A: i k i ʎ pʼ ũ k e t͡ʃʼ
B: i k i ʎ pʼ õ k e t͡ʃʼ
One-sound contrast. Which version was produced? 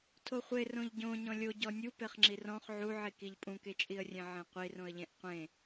A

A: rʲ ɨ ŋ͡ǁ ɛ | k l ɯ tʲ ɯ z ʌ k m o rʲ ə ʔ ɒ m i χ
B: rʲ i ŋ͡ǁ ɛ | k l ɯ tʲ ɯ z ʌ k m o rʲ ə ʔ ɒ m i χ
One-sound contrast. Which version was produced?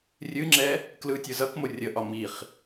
A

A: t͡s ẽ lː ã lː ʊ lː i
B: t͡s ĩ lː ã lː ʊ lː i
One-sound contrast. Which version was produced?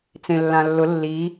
A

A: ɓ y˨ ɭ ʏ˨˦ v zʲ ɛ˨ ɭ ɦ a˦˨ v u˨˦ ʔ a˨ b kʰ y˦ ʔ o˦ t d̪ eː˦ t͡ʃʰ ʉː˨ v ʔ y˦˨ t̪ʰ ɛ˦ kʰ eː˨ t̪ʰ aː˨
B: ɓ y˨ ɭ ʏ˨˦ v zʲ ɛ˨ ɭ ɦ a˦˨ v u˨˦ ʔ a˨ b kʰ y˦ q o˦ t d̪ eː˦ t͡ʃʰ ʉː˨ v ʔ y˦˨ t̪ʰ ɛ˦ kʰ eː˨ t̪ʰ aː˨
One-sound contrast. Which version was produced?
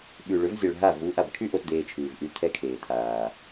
A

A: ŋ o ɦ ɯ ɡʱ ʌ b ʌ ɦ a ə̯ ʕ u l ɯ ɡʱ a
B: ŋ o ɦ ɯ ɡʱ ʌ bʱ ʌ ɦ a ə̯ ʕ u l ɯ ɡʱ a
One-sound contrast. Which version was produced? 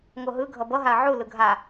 A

